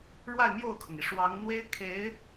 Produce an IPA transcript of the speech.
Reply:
ɻwa˥˧ɪ̯mjo˥˩ʊ̯kʰɤ˩ŋi˩ ʂwɑ˧˥ŋn̪we˥ɪ̯kʰe˧˥ɪ̯

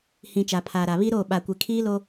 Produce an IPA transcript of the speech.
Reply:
hĩ˨ t͡ʃa˨pʰaː˨ɾa˨ βi˦ ɾoː˦˨ ɓa˨kʷe˨kʰiː˦lo˦

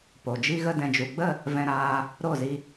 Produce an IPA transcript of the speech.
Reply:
po˨d͡ʒi˦ɣə˦ dɛ̃˨d͡ʒu˨ɡ͡bə˦˨ | vɛ̃˧ɾaː˧ | ɾo˦˨zi˧

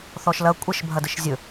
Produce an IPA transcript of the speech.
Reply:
θɔʃlɐ kʷʼəʃbʱɐ dəʃzʲɵ

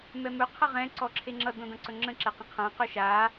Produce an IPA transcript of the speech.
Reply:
mɛmɵ qʰʌʁɛ̃ ǀɔǁʰeŋ͡ǁʌ dõdɐ̃ǀɵŋ͡ǁə̃ ǁɛqə̃qʰã qɵʃa

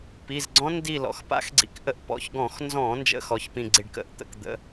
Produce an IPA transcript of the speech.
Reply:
pi˩˧˩zɡ͡ǀɔ̃˦˥ndi˦˨ lɔ̰˩˧˩x pa̰˦˥xɡ͡ǀḭ˧˩˧kʔə˦˨ʔpɔ̰˩˧˩ç ɡɔ̃˧˩˧xnzɔ̃˧˩˧ nd͡ʒə̰˦˥xɔ˩˧˩çpĩ˦˨ ɡ͡ǀi˦˨ɖkə̰˦˥ʔt̪ə̰˧˩˧k d̪ə̰˨˦

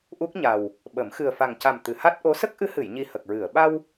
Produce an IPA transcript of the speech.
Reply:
ʔu˦˥k̚ɲa˨˩w | ɓə˨˩˦m xɨ˨˩ə̯fa˨˩ŋca˨˩m t̪ɨ˨˩˨ha˦˥t̚ʔo˧˥ sə˦˥k̚ʔɨ˧˥hɨ˨˩˨jɲi˨˩ hə˨˩k̚ɹɨ˨˩˨ə̯ ɓa˧w

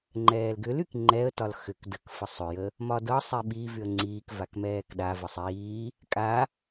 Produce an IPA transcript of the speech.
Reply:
ŋ͡ǃɛːlɡʏlyk ŋ͡ǃɛə̯tɒl xʏk dək fəsˤʏjə | mɒdɤsˤi ɓi vyə̯ŋ͡ǀiːkvak mɛːkɗavə sˤiː | kʼa

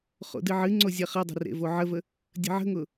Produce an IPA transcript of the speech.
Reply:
χo̰dɨʕɨŋ͡ǀo zʲɐχɐdˤə̤ rḛvoʕəvə | dʲə̤ʕə̤ŋʊ

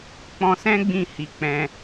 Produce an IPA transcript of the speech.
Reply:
k͡pɔ̃˧sɛ̃˦ɡ͡bĩ˧ hi˧k͡pɛ̃˧

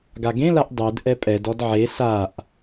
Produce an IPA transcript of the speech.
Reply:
ɡaɡẽlaʔ dˤud ʔɛpʼɛd ɔdʕe saʔ

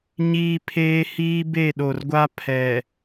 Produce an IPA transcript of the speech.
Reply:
ɲiː˦pʰeː˦ hiː˦be˦˨ɗo˨rɡʷa˦ pʰɛ˨

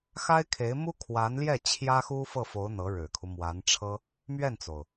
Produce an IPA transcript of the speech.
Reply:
xa˥ɪ̯kʰe˧˥ɪ̯mu˥ kʰwa˧˥nljɛ˥˩ t͡ɕʰjä˥xu˥ fɤ˥˩fo˧˥ʊ̯ n̪ɤ˧˥ ɻɻ̩˨˩kʰu˦mwa˧˥nʈ͡ʂʰɤ˥ | mɥɛ˥˩nt͡so˩ʊ̯

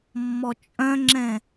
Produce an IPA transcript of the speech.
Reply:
mːɔt͡ʃʼœ̃ŋ͡ǁɛ̃

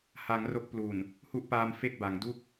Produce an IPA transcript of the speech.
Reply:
ha˩˦ŋ ro˦˥k̚ plu˨˩n | hu˦˥ʔpaː˧m fe˥˩k̚ba˩˦ŋ du˥˩k̚

